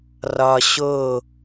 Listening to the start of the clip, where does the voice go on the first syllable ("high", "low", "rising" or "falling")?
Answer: high